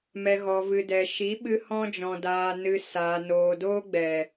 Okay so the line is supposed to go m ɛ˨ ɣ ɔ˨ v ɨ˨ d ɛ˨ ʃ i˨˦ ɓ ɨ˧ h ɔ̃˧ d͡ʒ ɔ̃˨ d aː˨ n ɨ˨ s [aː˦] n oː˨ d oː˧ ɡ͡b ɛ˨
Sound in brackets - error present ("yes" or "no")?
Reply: yes